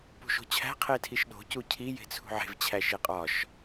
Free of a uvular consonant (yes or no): no